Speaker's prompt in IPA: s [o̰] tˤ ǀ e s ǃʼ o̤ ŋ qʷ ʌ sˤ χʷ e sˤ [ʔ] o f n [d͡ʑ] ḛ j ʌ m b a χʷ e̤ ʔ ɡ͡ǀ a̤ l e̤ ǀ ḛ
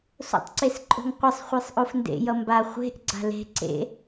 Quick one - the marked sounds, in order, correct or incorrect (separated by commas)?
correct, correct, incorrect